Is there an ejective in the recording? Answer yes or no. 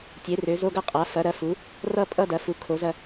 yes